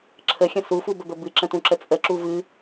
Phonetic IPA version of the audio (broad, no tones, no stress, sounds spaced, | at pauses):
ǁʰ ə xʲ ə̃ s u f u b ə b ə b ɨ ǁ ə̃ t ũ ǁ ə t͡sʼ ə ǁ u v ɨ